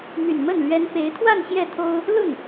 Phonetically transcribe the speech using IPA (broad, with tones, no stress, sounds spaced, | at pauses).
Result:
m y˨˩ n m ə˥˩ n l ɥ ɛ˧˥ n p e˧˥ ɪ̯ t̪ʰ w a˥˧ n ɕ j ɛ˥˩ t̪ʰ o˥ ʊ̯ | l ʊ˥˩ ŋ